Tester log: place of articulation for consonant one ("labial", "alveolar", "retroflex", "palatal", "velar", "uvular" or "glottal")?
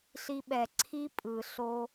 alveolar